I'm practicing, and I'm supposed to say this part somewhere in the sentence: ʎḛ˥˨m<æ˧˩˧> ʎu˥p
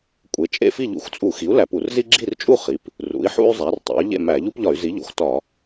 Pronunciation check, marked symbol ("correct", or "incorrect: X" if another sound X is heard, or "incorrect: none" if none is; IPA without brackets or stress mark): correct